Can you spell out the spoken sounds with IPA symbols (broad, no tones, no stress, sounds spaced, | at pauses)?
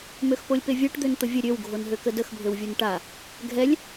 m ø x p o lʲ p e vʲ a ʈ d̪ ø n t̪ ə vʲ ə ɾʲ ø w ɡʱ o n ɦ ø k ə d ə x bʱ ø w vʲ o n ʈ a | ɡʱ ɛ lʲ